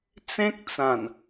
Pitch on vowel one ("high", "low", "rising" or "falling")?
high